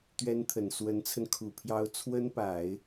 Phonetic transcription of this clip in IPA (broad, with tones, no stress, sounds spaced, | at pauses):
t̪ ɥ ɛ˥ n t̪ʰ ə˨˩ n s w ə˧˥ n t͡sʰ ə˧ n kʰ u˨˩ pʰ j ɑ˥ ʊ̯ t͡sʰ w ə˥ n p a˨˩˦ ɪ̯